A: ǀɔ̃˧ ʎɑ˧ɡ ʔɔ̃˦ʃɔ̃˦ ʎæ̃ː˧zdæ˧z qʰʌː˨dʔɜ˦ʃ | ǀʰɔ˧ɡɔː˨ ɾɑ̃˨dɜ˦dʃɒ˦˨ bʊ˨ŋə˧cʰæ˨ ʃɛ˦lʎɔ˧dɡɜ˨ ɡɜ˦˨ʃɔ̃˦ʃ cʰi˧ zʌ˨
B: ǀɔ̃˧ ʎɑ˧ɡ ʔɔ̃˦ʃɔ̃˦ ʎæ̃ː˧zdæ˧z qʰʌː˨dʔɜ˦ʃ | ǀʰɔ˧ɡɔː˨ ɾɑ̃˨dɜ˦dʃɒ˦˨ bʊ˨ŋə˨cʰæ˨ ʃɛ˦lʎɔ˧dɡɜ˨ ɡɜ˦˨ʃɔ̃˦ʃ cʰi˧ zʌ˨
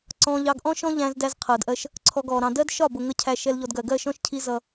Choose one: A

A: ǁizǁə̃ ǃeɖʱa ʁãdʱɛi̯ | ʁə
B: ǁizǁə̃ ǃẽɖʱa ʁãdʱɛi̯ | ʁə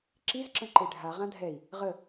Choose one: A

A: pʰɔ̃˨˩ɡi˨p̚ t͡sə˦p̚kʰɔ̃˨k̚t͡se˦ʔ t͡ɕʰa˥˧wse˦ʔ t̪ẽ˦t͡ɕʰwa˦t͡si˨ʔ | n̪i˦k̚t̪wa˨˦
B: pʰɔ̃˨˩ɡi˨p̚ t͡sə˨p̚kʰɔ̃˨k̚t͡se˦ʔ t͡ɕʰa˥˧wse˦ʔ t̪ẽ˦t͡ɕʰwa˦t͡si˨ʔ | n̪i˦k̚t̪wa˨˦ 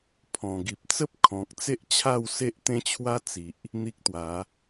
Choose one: A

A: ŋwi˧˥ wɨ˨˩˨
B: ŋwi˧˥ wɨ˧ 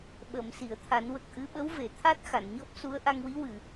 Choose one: A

